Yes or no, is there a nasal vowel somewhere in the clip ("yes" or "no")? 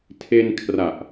no